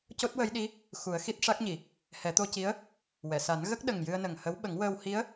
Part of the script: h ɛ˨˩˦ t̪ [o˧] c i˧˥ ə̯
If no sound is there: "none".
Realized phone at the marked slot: o˧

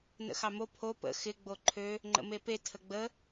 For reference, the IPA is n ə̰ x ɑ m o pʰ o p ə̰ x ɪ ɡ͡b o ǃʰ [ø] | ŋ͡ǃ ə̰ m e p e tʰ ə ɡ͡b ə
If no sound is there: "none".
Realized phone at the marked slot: ø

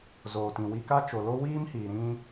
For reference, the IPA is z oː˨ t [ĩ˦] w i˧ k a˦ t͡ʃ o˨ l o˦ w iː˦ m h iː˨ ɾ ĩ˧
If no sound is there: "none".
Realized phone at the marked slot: ĩ˨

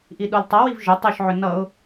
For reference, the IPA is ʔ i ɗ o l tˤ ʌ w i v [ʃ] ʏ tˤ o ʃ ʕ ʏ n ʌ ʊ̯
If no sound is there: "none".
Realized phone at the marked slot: ʒ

